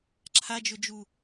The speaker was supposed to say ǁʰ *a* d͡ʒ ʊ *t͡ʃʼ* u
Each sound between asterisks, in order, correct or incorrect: correct, incorrect

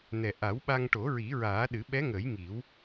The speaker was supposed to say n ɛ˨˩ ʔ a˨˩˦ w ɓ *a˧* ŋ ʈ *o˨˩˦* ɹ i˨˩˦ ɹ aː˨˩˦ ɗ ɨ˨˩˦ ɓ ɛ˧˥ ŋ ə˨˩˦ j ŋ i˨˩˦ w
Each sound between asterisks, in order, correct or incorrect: correct, correct

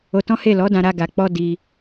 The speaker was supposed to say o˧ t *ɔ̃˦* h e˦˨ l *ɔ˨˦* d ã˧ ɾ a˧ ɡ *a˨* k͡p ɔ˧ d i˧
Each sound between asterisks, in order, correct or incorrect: correct, correct, correct

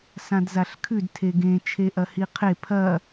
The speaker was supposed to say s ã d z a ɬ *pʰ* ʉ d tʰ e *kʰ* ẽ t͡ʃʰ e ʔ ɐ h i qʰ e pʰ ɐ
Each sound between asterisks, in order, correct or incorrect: incorrect, incorrect

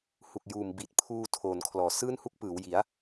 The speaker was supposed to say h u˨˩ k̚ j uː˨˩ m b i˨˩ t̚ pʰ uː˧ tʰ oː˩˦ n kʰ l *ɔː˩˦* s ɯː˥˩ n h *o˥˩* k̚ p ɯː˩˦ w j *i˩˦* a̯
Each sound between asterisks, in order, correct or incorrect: correct, incorrect, correct

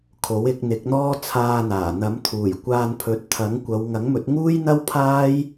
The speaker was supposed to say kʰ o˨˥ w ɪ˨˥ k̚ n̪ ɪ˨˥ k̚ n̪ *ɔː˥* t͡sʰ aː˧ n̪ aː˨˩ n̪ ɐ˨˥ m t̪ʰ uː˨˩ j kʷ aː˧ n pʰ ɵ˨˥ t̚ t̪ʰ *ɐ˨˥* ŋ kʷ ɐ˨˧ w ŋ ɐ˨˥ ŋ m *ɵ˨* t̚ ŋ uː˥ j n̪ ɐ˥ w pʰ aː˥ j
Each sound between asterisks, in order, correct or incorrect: correct, correct, incorrect

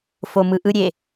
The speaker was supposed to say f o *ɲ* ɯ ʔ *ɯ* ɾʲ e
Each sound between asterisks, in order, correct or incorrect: incorrect, correct

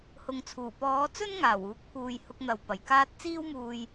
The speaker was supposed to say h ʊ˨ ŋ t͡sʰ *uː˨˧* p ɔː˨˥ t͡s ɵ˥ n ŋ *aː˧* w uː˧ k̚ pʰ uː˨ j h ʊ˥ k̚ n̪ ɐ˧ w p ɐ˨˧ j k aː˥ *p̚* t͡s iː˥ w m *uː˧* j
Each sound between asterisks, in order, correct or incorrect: incorrect, incorrect, incorrect, correct

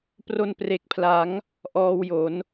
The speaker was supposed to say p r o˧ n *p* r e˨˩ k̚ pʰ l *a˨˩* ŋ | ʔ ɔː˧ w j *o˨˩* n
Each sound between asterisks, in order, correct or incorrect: correct, incorrect, incorrect

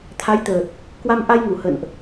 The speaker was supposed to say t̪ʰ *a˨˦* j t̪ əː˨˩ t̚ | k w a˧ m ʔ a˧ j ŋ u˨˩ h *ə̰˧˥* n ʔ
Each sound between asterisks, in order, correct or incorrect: correct, incorrect

